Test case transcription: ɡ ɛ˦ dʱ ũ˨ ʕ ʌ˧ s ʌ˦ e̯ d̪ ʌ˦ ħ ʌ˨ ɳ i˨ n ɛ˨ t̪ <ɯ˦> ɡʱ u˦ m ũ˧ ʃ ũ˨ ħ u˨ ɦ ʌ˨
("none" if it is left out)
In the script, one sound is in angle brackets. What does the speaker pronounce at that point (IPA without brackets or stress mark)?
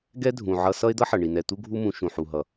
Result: u˦